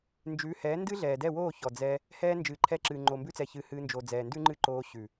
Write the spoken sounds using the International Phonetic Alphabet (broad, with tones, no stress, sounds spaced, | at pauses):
n d͡ʒ ʉː˨˦ h ɛː˨˦ n d ɨ˦ ɮ ɛː˨ d ɛ˦˨ w oː˦˨ ç ɔ˨ d͡z ɛ˧ | h ɛː˧ n d͡ʒ ɨː˨ ǃʰ ɛ˧ ǁ ɨ˨ ŋ͡ǃ o˨ m b ʉ˧ t͡s ɛ˨ ç ɨ˨˦ h ɨː˧ n d͡ʒ o˨ d͡z ɛː˨ n d ʉ˦ ŋ͡ǃ ɨ˦ ǃ oː˧ ɕ ʉ˨